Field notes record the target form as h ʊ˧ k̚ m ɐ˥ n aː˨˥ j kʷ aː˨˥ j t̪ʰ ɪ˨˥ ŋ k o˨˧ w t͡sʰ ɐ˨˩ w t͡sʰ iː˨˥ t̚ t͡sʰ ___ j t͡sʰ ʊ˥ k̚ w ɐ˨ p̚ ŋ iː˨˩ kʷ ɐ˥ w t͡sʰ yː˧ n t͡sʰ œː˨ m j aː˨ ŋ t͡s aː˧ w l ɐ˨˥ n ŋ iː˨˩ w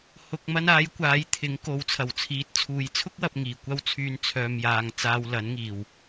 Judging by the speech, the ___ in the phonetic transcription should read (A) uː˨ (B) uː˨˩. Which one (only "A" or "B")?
A